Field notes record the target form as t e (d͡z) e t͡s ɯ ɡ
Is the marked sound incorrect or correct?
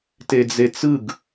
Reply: correct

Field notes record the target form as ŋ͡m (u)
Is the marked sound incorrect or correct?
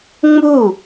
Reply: correct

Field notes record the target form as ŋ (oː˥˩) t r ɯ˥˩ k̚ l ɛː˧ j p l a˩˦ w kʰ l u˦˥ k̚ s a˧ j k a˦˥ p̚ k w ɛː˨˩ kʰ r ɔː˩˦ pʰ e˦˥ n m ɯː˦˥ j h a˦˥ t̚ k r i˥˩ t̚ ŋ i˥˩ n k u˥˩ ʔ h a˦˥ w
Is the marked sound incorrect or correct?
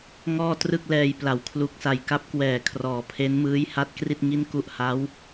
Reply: incorrect: ɔː˥˩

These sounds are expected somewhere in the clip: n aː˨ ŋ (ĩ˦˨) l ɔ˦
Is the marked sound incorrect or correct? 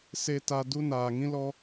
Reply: incorrect: ĩ˦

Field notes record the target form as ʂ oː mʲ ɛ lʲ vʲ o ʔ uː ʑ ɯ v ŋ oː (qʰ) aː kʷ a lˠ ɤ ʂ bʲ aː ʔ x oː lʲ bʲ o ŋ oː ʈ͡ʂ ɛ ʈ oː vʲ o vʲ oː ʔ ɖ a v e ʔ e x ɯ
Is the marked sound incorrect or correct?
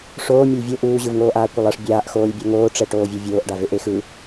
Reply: incorrect: ʔ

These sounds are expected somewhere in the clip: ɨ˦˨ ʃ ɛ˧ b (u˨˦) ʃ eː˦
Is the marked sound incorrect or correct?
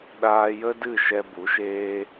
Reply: correct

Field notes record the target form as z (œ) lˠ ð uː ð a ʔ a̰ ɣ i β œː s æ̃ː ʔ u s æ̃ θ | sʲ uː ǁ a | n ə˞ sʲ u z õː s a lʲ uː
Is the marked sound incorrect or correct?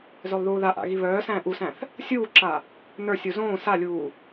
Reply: correct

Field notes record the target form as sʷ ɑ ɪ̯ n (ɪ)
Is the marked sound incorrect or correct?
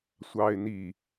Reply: incorrect: i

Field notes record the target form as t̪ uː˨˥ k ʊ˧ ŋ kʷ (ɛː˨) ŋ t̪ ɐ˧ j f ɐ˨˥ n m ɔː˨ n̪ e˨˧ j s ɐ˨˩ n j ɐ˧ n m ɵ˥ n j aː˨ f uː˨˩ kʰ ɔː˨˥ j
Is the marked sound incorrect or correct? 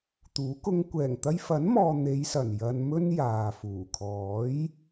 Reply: incorrect: ɛː˨˩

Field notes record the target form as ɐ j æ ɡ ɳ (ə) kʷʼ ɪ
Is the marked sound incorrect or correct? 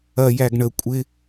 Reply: correct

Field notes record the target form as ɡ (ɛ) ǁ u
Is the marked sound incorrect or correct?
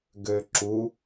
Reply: incorrect: ø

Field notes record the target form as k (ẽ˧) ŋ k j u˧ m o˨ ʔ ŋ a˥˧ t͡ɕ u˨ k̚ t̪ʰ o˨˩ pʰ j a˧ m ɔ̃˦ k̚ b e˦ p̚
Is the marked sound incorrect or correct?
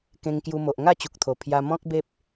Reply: correct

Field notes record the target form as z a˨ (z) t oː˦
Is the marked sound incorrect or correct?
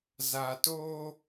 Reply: incorrect: none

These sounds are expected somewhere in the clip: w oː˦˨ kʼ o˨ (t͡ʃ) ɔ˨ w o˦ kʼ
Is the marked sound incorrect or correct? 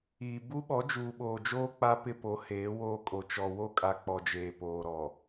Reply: correct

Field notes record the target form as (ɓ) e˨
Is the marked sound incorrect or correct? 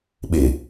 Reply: correct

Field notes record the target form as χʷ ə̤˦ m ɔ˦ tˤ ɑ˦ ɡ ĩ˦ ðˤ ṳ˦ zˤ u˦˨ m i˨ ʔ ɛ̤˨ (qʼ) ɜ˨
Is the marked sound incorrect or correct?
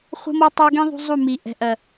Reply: incorrect: ʔ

